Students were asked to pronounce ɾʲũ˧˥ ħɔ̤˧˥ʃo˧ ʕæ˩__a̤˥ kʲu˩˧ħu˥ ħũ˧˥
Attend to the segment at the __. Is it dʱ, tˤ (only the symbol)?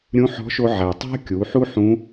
tˤ